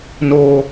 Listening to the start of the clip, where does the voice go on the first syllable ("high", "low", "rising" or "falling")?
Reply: high